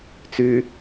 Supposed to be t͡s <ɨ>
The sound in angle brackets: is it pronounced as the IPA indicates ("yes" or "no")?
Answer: no